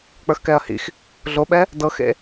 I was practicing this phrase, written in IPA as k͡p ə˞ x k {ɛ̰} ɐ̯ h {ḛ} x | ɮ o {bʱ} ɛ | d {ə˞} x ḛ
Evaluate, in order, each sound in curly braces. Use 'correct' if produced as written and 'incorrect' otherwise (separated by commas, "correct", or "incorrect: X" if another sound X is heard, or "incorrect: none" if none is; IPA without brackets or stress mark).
incorrect: ɛ, incorrect: ḭ, incorrect: ɓ, incorrect: ɤ